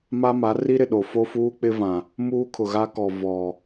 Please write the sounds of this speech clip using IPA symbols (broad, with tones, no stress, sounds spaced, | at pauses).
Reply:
m a˦ m a˨˦ r i˦ ɾ ɪ˨ ɗ o˨ f o˦ f uː˦ k͡p ɪ˦ v ã˨ | m uː˦ kʰ ʊ˨ ɣ a˦ k ɔ˨ v ɔ˨